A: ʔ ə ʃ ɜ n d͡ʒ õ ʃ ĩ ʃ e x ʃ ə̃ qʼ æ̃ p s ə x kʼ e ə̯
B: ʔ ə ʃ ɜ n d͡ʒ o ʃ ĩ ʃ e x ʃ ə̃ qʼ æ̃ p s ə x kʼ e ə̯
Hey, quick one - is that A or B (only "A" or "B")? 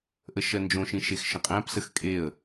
A